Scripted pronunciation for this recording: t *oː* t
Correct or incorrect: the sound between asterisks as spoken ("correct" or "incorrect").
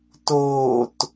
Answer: correct